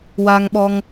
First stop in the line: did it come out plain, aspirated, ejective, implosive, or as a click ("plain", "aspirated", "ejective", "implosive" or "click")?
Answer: implosive